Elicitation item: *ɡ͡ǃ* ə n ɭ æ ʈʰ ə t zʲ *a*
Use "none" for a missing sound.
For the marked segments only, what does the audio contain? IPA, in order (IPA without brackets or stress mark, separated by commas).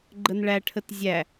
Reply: ɡ͡ǃ, æ